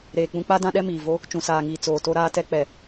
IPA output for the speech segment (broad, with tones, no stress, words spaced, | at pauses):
ɾeː˨k͡pũ˦ k͡pa˦ dã˦ɗɛ˦miː˨ vo˦ | t͡ʃũ˨saː˨ŋiː˨ t͡soː˨to˦ ɾaː˦tɛ˦k͡pɛ˨